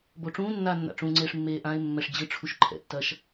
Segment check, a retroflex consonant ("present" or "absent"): present